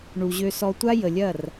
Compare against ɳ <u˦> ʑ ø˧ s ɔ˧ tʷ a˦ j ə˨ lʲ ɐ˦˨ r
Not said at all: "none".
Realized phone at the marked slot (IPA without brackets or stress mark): u˨